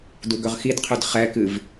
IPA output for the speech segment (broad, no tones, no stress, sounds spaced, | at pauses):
d u ɡ ɵ ʁ x i d qʰ ɵ d χ ɛ k ɨ v